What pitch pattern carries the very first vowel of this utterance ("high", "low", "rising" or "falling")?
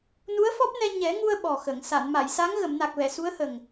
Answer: rising